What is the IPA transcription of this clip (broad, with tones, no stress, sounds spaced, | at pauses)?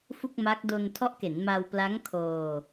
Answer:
f u˥˩ k̚ m a˦˥ k̚ d o˧ n tʰ ɔ˦˥ ʔ k e˩˦ n m a˧ w p l a˦˥ ŋ kʰ oː˧